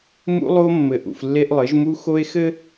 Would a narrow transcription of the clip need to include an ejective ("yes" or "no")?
no